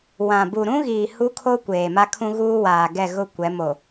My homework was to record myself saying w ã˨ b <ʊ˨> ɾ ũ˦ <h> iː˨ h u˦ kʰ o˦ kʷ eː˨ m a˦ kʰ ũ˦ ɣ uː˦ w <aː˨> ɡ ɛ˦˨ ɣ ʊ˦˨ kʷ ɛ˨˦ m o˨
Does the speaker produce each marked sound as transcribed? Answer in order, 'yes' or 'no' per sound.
no, no, yes

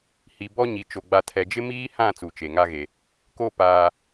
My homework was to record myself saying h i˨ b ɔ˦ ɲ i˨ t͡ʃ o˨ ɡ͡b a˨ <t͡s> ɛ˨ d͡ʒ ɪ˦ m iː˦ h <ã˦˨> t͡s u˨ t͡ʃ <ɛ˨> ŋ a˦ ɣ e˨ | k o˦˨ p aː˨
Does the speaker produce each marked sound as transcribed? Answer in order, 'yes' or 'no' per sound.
no, yes, no

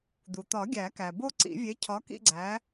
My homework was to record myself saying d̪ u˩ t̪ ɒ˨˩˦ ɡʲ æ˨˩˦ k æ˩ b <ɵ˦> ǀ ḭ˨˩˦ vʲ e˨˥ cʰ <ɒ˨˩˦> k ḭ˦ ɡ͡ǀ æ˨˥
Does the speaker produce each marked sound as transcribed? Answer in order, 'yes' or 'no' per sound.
no, no

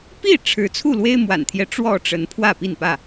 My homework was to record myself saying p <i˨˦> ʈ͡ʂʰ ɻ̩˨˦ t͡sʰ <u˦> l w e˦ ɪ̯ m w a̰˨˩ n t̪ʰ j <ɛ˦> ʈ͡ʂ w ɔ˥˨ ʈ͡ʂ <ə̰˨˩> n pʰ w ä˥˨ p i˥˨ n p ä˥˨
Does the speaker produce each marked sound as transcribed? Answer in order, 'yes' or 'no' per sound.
no, no, yes, no

